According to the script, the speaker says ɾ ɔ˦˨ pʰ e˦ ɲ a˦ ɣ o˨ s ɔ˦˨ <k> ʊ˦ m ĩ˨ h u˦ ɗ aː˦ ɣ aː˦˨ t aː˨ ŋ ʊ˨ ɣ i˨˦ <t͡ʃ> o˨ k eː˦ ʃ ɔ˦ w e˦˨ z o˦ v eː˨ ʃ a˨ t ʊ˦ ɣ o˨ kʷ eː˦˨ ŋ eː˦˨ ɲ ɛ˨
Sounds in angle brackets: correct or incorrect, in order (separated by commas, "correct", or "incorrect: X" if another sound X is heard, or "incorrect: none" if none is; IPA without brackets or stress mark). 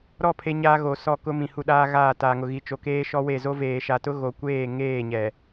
correct, correct